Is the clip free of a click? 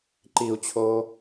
no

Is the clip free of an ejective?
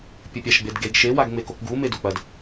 yes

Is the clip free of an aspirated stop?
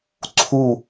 no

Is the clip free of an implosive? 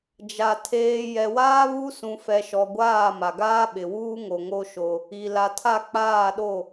no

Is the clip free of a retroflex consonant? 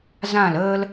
yes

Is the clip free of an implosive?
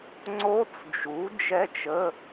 yes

